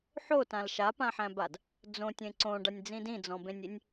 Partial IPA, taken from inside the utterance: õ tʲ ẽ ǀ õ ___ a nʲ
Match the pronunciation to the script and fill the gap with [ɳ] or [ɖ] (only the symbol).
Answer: ɖ